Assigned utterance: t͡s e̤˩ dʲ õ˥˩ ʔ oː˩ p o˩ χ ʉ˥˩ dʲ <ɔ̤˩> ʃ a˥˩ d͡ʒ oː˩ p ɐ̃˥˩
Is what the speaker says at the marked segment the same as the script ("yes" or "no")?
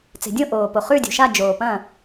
no